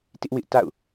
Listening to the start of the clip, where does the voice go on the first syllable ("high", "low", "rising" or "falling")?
high